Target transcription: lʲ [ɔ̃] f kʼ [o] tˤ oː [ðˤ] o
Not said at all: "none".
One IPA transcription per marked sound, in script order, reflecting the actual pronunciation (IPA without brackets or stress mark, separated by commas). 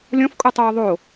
ɔ̃, u, ðˤ